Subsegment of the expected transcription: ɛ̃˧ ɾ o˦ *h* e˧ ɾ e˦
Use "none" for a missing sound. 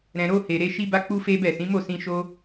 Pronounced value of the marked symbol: h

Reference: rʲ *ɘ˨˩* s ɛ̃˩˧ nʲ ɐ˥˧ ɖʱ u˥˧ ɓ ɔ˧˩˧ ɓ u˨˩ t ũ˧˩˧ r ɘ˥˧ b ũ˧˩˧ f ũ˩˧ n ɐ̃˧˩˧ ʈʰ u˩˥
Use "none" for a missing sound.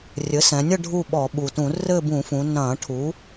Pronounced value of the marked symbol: ɘ˩˥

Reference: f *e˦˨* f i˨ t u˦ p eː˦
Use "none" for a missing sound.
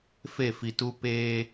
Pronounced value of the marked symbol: e˦˨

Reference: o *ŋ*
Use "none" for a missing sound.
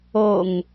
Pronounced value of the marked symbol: ŋ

